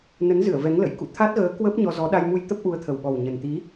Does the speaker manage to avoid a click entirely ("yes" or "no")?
yes